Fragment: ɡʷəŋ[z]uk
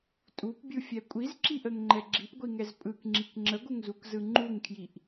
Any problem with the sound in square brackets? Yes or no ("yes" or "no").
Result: no